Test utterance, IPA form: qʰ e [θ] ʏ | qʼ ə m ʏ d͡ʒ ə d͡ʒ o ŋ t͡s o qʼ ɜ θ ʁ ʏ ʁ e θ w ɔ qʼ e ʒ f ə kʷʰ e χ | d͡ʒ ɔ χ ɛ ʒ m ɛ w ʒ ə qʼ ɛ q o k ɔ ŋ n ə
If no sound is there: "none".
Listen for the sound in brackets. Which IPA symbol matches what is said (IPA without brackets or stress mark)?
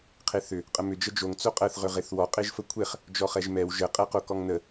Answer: θ